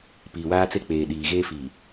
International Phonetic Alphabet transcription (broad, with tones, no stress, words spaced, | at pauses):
piː˨waː˦t͡se˦ k͡peː˨ɗiː˨ ɣeː˦fiː˨